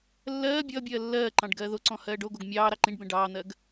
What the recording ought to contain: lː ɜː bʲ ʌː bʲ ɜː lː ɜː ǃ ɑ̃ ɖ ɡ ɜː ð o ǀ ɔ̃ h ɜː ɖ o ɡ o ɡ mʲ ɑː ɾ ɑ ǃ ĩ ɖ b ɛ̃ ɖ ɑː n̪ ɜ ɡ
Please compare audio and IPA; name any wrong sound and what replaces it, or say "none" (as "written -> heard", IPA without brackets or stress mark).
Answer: none